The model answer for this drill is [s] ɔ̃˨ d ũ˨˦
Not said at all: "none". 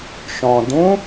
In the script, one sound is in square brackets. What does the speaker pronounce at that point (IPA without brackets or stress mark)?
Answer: ʃ